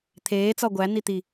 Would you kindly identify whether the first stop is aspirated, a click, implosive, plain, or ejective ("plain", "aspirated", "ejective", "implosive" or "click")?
aspirated